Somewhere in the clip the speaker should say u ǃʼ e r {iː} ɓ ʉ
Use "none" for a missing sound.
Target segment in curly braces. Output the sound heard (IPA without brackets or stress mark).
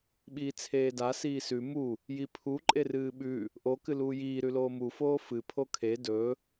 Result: ɨː